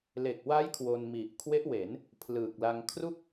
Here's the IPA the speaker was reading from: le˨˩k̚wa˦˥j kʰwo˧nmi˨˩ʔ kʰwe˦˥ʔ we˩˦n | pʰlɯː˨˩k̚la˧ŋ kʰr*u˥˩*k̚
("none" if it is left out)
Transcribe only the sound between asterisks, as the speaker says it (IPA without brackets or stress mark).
u˥˩